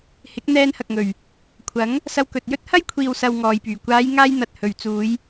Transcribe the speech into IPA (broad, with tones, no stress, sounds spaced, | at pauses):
h ɪ˨˥ k̚ n̪ ɛː˧ n h ɐ˨ k̚ ŋ ɵ˨˩ ɥ | kʷʰ ɐ˨˥ ŋ | s ɐ˧ w k ɵ˨ t̚ j ɵ˥ t̚ h ɐ˥ j kʷʰ iː˨ w s ɐ˨ w ŋ ɔː˨ j p yː˨˩ kʷ aː˨˧ j ŋ aː˧ j n̪ ɐ˨ t̚ h ɵ˨ ɥ t͡s uː˨˧ j